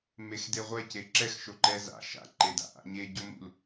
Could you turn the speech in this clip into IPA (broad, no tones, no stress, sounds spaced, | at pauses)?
m e x d e ʁʷ ɛ c e ǁ ɛ x ʃ o ǃ ɛ z a̰ ʃ a̰ ǃ e d a̰ ʔ a̰ ɲ e ɟ o m ṵ l